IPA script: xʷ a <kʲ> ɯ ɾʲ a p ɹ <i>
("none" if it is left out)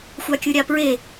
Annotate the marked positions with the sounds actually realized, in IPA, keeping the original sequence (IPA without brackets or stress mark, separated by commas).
kʲ, e